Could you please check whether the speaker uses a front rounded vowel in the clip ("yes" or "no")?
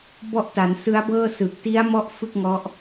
no